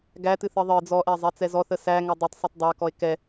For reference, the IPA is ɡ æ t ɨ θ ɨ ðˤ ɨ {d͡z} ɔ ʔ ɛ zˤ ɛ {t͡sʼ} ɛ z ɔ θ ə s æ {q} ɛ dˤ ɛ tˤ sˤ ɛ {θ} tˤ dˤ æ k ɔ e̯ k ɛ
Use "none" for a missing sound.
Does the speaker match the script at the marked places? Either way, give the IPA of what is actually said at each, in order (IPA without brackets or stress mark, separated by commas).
d͡z, t͡s, ŋ, none